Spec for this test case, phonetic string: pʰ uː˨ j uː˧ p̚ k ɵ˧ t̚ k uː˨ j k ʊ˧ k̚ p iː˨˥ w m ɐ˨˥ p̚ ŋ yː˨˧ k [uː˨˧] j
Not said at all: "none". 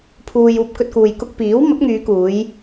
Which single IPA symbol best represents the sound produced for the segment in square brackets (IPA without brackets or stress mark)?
uː˨˧